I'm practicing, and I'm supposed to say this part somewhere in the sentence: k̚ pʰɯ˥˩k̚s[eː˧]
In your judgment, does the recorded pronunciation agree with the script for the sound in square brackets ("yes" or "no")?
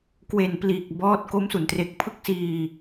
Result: no